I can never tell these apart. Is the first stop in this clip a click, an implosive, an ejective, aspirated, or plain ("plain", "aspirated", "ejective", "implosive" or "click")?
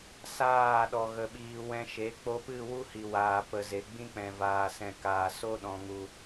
implosive